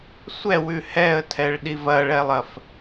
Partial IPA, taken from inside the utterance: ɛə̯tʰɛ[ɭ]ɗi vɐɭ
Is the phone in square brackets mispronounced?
no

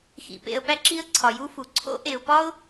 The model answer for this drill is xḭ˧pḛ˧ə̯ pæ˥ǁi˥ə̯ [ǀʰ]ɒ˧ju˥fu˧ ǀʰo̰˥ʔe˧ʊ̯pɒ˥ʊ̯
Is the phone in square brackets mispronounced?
no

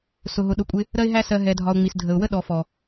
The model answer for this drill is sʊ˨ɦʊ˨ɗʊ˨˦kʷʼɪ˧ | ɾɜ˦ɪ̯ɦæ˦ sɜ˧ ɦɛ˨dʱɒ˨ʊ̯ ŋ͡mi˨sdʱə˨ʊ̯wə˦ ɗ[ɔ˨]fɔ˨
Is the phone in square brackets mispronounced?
no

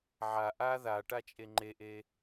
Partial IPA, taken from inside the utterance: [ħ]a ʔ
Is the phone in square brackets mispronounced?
yes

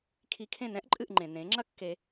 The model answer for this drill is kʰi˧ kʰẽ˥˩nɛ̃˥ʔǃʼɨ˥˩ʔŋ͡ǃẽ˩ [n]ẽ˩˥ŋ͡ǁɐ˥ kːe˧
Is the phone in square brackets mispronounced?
no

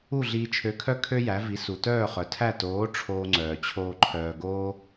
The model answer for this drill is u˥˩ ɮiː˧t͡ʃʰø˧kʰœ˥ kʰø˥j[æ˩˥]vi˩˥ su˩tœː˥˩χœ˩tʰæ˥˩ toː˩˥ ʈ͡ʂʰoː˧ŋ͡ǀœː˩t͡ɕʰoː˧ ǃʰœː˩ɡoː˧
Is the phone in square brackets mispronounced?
no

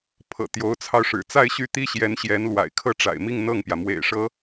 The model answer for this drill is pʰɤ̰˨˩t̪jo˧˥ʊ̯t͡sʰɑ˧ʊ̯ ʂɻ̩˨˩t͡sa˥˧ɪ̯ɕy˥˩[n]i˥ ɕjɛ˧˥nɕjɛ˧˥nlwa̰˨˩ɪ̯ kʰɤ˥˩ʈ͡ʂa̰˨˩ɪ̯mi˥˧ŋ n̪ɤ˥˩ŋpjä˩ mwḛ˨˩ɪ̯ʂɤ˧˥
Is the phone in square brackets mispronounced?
yes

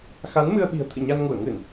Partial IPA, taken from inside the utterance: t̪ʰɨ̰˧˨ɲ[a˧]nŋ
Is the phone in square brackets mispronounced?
no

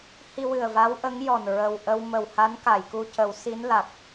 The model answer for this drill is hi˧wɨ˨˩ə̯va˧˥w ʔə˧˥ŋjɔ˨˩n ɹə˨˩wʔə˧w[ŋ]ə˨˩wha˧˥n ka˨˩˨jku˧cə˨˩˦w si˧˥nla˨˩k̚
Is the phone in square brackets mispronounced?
yes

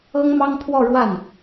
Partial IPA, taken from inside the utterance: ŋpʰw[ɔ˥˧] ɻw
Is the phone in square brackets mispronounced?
no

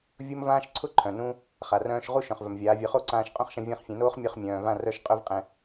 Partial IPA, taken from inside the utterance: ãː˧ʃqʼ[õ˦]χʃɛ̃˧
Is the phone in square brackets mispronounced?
no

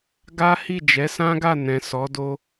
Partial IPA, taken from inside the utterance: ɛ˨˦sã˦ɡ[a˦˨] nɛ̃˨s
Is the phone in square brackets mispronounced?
no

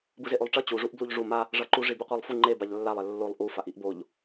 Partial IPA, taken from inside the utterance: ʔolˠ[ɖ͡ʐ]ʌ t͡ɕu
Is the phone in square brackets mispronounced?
yes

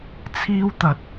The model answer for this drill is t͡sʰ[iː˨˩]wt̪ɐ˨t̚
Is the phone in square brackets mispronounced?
yes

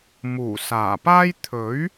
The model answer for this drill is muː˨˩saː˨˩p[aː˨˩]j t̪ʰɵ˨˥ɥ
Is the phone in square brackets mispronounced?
yes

